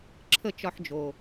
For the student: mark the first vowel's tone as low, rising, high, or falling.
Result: falling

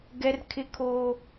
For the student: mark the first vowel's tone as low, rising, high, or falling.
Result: high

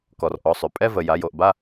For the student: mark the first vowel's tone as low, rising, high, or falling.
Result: low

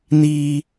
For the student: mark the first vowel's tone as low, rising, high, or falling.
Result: high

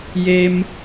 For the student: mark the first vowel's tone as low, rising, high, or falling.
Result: low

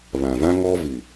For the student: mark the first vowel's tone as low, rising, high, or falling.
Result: low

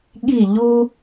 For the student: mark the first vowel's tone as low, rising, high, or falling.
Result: falling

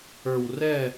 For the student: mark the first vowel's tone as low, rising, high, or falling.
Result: low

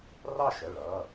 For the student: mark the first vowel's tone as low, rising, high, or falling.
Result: falling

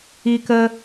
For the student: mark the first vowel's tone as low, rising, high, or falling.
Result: high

